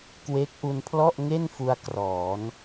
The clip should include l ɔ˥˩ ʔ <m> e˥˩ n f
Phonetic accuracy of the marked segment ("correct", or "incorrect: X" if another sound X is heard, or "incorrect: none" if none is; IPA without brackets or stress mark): incorrect: ŋ